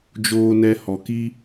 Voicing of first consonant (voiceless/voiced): voiced